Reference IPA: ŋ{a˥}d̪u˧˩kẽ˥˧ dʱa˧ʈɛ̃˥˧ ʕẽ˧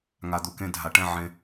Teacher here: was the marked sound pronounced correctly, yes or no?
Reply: no